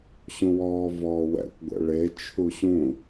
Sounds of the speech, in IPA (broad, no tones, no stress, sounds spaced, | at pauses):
ɕ ũ w ɔː v ɔː w ɛ̰ kʷ ɡʷ ɛ̰ ɭ e t͡ʃʰ u ɕ ũ